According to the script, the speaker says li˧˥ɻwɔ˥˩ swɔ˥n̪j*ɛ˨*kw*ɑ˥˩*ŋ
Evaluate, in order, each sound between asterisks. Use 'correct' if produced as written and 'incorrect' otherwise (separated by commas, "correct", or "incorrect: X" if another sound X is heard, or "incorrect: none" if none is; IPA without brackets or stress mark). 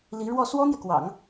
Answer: correct, incorrect: ɑ̰˨˩˦